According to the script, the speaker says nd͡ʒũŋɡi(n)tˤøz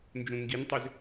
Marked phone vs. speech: correct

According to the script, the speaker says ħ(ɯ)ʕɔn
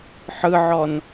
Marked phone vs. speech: correct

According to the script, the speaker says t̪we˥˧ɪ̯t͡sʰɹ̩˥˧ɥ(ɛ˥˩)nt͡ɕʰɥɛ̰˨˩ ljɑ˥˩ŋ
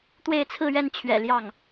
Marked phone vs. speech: correct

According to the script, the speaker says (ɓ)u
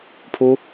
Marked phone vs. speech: incorrect: pʰ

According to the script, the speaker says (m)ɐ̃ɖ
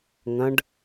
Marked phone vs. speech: incorrect: ŋ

